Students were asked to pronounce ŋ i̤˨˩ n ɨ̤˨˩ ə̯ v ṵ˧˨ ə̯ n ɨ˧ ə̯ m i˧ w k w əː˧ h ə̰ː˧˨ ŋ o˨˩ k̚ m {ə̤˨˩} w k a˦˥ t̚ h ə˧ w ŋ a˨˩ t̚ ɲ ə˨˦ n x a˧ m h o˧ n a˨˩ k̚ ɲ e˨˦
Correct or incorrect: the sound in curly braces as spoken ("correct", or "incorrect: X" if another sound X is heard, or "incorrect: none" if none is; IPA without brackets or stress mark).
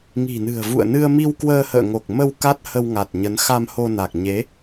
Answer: incorrect: ə˧